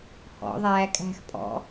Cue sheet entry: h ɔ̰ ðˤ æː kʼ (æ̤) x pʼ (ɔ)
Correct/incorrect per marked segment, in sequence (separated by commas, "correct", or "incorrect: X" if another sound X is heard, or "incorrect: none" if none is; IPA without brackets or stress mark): correct, incorrect: ɔ̰